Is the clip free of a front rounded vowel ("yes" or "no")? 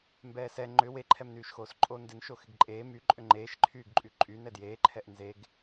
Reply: no